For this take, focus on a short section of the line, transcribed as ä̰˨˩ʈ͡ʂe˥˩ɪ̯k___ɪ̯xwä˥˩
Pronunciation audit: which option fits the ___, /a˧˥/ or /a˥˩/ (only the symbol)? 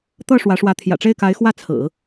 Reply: a˧˥